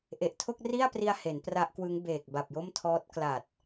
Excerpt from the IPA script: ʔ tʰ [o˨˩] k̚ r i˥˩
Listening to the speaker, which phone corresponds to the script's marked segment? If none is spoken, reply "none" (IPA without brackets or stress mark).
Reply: o˥˩